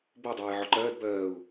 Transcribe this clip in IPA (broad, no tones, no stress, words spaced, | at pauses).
bo dˤɜːjʕɔǃɜːd bɜːu̯